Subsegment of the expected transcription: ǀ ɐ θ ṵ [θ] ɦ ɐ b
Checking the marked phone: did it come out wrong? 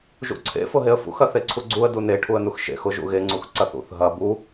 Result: no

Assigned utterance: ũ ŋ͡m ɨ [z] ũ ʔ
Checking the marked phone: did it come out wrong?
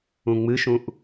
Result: yes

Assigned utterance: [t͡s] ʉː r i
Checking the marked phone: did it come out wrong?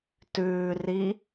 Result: yes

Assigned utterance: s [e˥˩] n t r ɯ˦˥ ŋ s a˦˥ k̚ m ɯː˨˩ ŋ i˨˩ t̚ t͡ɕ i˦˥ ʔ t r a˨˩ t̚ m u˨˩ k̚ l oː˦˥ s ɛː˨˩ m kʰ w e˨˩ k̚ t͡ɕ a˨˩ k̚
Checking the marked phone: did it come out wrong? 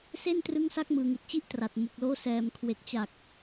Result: no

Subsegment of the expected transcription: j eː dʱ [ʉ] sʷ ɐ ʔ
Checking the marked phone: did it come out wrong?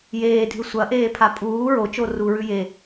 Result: no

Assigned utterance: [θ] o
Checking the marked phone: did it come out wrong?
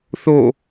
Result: no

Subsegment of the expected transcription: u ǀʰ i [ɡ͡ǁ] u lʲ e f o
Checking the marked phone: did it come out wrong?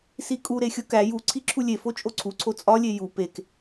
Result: yes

